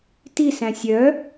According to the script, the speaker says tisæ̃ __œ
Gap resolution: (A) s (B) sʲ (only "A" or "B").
B